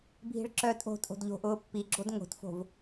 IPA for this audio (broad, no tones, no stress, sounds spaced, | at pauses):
bʱ i̤ ɭ ǁ œː tʼ o̤ tʼ o̤ d ʎ o̤ ʔ ʊː pː i ɡ͡ǁ o d ŋ o̤ t f o̤ v